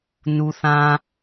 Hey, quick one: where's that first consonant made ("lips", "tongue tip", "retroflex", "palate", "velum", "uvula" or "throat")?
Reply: tongue tip